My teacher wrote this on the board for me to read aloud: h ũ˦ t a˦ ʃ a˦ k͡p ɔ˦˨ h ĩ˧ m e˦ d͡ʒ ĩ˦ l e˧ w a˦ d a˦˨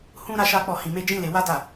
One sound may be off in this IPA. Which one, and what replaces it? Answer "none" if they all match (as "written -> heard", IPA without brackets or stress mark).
t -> ɾ